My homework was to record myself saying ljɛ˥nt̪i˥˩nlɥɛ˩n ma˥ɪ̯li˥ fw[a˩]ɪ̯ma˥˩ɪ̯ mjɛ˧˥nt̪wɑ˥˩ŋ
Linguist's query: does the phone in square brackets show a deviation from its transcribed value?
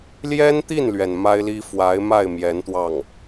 yes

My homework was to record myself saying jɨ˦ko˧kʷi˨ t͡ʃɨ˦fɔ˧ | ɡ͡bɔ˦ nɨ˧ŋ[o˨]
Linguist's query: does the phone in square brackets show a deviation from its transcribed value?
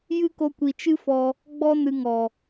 yes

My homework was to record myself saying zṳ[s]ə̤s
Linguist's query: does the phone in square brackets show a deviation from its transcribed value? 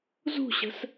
yes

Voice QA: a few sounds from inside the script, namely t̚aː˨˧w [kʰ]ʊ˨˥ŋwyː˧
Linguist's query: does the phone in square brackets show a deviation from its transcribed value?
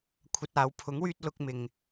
yes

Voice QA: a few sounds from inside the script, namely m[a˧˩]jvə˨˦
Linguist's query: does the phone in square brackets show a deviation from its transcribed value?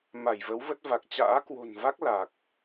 no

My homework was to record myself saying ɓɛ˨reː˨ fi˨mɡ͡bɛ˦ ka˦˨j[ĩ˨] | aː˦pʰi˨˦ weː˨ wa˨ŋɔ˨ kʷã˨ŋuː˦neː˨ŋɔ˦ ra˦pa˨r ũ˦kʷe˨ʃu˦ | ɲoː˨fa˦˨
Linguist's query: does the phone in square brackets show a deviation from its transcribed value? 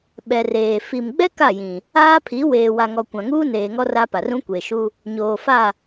no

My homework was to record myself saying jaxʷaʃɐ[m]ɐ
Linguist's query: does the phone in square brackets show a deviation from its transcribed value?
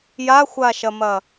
no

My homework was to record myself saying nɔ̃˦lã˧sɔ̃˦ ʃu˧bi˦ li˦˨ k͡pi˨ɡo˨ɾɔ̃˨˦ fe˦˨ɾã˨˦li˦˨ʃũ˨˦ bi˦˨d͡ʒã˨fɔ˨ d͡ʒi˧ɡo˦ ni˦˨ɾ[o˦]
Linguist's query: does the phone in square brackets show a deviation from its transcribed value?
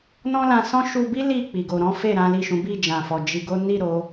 yes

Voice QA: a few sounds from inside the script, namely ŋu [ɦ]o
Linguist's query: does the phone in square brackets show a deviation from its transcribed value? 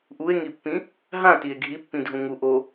yes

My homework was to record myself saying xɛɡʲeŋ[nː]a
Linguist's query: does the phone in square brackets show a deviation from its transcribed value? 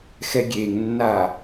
no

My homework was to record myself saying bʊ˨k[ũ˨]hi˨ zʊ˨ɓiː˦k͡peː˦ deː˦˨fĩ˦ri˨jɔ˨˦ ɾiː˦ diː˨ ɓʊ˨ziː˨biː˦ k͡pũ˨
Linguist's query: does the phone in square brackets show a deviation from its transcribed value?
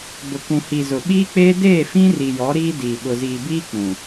no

